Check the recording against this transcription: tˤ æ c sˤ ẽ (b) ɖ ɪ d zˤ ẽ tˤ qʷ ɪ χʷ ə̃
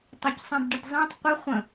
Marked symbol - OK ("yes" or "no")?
yes